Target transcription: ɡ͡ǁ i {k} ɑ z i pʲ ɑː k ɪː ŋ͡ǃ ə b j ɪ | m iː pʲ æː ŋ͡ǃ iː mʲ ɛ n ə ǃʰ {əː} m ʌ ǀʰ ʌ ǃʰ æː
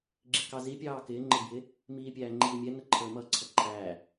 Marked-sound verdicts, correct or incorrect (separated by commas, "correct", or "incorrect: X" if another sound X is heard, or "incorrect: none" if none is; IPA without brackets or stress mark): correct, correct